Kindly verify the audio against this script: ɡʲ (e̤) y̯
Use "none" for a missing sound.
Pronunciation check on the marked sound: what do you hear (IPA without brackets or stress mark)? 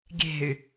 e̤